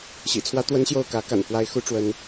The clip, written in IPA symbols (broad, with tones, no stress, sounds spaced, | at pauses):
ɕ ḭ˨˩ t͡sʰ w ä˥ t̪ w ə˥ n ɕ j o˥˩ ʊ̯ k ä˧˥ k a̰˨˩ n f w a˥ ɪ̯ x u˥ ʈ͡ʂ w ə˥ n